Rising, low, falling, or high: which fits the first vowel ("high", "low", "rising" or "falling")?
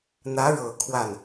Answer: rising